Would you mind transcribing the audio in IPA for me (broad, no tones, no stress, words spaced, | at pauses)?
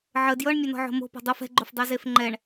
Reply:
ʕə djɤɳmʲɵnɔ̤ ʕo̤mo̤pɔ̤ dˤof ɛ̤ɡ͡ǃofdˤɜ zefŋ͡ǃɛɳ